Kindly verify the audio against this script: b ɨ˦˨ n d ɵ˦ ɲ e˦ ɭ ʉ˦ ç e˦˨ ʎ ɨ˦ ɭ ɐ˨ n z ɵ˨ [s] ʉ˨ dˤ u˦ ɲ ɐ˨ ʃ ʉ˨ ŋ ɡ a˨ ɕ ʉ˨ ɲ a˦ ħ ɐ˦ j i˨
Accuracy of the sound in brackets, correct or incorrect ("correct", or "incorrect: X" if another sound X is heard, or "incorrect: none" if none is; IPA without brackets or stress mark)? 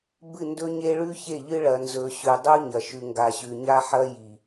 incorrect: ɕ